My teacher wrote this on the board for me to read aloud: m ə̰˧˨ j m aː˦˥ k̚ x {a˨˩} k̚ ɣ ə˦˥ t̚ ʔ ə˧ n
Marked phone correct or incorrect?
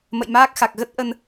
correct